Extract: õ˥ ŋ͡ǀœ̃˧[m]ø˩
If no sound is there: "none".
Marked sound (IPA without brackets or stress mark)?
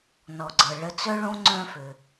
f